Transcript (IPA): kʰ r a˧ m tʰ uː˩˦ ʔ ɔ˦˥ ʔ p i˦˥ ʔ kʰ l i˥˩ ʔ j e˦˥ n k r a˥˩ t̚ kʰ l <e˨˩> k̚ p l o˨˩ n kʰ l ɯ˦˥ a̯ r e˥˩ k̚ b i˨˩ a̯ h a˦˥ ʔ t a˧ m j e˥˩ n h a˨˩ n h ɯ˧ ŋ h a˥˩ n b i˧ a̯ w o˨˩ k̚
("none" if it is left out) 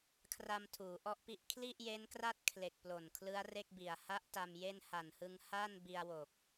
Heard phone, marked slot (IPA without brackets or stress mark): e˨˩